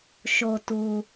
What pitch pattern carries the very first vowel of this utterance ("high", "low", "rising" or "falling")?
low